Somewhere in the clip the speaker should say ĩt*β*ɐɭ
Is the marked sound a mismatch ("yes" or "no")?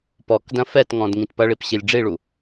yes